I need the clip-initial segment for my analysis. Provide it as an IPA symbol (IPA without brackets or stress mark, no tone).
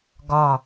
ɡ